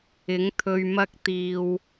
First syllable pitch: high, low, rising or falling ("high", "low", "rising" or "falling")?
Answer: rising